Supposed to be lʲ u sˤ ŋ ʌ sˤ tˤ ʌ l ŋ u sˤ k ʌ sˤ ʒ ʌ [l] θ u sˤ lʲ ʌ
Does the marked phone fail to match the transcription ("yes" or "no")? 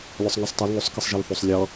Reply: no